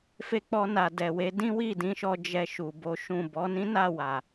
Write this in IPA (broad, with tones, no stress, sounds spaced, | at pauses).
f e˧ k͡p ɔ˧ n a˨ d ɛ˨ w e˨˦ d ĩ˦ w i˦˨ d ĩ˨˦ ʃ ɔ˧ d͡ʒ ɛ˧ ʃ u˨ b o˨˦ ʃ ũ˦˨ b ɔ˨˦ n ĩ˦ n a˦˨ w a˨